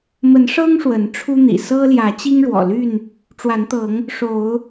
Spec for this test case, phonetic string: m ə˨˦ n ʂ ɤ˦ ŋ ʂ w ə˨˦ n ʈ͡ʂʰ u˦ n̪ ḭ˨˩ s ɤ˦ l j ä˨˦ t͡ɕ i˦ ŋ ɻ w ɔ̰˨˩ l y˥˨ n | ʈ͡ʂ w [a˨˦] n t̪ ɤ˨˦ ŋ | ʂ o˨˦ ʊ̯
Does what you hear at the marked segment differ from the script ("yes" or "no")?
no